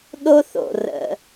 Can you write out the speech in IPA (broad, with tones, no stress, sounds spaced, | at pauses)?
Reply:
ɗ o˧ θ o̰˩ r ə̰˩